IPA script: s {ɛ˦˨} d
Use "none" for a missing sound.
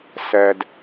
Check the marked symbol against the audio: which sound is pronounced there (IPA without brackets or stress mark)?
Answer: ɛ˨